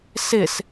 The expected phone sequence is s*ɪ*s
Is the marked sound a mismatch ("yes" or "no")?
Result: no